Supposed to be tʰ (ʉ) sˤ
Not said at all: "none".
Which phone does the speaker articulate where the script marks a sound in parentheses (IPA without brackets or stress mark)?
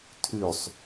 ʉ